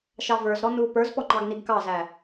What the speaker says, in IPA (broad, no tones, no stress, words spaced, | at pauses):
ʃɑvə˞zɾɔ nu pə˞zpɔ ŋ͡ǃɑɡniɡkɑzæ